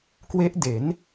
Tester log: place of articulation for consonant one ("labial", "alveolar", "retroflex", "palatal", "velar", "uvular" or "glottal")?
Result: velar